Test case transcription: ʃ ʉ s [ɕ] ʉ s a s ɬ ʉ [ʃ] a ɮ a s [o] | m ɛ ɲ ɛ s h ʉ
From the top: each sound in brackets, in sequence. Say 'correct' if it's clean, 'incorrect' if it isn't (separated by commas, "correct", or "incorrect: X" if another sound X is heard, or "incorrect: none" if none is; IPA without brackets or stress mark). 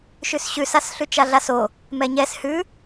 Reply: correct, incorrect: t͡ʃ, correct